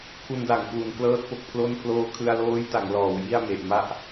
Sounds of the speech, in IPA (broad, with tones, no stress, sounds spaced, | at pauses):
pʰ u˧ n d a˩˦ ŋ k w u˩˦ n k l ɤː˥˩ t̚ p o˦˥ k̚ pʰ l o˥˩ n pʰ l oː˧ kʰ ɯ˧ a̯ l oː˦˥ j t a˩˦ ŋ l ɔː˩˦ w j i˥˩ a̯ m e˨˩ ʔ m a˥˩ ʔ